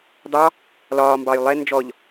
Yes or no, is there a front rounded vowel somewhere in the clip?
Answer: no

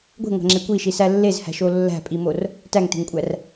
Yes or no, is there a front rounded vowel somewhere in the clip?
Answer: no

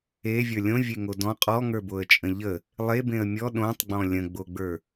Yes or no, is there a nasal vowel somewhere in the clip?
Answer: yes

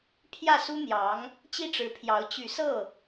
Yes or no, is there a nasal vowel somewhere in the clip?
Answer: no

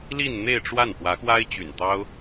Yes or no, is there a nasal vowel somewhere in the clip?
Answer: no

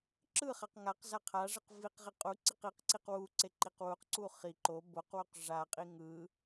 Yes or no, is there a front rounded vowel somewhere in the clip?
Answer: no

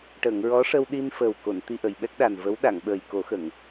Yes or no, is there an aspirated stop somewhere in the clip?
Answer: no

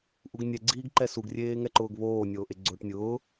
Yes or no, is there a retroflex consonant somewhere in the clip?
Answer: yes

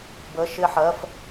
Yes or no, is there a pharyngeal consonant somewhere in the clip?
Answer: yes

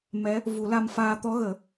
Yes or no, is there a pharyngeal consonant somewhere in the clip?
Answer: no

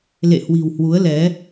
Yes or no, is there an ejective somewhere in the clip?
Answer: no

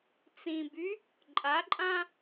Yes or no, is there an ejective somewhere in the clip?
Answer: yes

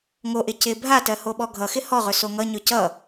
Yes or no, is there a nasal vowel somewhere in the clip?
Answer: no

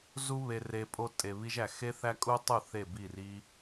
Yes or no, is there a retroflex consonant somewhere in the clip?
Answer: no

